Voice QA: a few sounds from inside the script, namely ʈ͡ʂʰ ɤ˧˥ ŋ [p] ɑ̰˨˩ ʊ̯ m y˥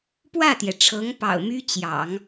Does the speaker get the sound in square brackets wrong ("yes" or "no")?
no